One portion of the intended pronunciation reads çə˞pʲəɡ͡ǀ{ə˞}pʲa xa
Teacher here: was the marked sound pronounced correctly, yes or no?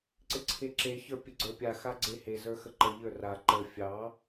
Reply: yes